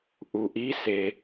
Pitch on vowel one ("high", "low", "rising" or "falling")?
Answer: low